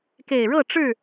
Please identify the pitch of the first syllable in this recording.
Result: low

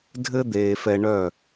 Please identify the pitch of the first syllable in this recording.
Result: high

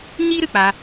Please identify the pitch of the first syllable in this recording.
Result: high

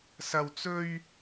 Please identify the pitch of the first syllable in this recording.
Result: high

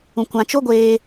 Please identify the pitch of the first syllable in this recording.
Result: high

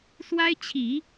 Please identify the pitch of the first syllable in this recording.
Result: high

